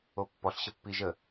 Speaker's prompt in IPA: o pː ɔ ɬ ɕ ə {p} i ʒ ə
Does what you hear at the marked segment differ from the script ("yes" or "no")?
yes